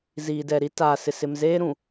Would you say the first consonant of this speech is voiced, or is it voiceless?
voiced